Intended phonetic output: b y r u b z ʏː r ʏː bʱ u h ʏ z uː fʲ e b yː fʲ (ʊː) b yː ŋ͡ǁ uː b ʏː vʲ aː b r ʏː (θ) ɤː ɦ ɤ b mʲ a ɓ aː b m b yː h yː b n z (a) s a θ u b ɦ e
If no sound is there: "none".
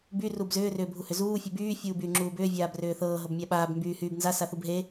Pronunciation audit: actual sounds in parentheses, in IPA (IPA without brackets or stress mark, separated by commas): uː, θ, a